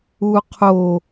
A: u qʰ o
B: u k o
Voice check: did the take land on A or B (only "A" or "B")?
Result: A